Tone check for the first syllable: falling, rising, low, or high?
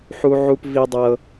high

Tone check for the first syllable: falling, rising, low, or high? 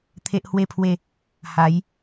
high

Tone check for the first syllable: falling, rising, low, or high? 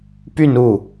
falling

